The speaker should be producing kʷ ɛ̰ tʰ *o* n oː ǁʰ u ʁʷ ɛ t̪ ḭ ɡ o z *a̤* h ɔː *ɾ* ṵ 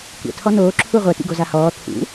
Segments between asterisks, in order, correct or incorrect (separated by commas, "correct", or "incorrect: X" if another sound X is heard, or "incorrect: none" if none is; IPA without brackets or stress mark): incorrect: ɔ, incorrect: a, incorrect: t̪ʰ